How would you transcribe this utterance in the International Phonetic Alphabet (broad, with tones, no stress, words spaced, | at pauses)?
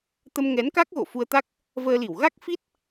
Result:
t̪ə˧mŋɛ˨˦nka˦˥k̚ ɣo̰˧˨fu˧ə̯t̪a˦˥k̚ | vəː˧li˧˩w ɣa˦˥k̚ fi˦˥t̚